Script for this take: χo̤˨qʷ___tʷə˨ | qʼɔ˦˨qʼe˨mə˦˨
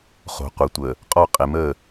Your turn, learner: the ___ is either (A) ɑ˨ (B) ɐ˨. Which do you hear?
B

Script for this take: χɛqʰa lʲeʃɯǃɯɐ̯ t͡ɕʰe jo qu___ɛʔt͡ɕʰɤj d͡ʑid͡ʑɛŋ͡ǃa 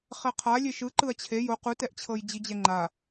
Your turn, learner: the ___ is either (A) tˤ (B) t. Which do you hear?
B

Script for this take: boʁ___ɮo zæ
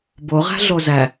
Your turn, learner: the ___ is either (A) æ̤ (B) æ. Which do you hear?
A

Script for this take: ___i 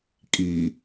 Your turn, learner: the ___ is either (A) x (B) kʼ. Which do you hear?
B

